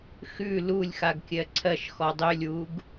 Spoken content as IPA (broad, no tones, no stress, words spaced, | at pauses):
xʉ lulʲxaɡ kʲɜǀʰɜʃxɔ dˤølʲwuɡ